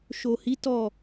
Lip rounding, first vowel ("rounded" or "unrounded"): rounded